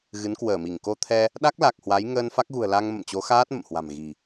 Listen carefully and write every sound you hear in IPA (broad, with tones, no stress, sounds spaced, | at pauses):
ɣ ɨ˨˦ n k w əː˧˩ m i˧˩ ŋ k o˧ t̪ʰ ɛ˧ | ɗ a˦˥ k̚ l a˨˩ k̚ h w a˨˦ j ŋ əː˧ n f a˦˥ k̚ ɣ ṳ˨˩ ə̯ l a˧ ŋ m ə̰˧˨ m t͡ɕ o˨˦ x aː˦˥ t̚ m ə̰˧˨ m h w a̤˨˩ m ɣ i̤˨˩